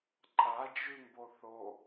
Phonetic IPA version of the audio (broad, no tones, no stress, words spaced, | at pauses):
ǃʼad͡ʒʉmbo θo